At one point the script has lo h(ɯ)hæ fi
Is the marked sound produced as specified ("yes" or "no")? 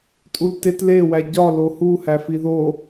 no